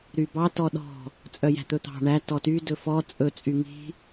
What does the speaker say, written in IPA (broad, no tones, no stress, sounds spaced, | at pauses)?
ɾ y b ɑ t ɔ ɗ ɔ̤ | t͡sʼ œ j æ̤ t̪ ɵ t̪ ɑ̤ ɳ æ t ɔ t y d ɵ f ɔ t͡sʼ ɵ t͡sʼ y ŋ i̤